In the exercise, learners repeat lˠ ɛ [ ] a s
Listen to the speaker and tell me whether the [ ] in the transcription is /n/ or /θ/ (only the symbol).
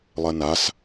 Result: n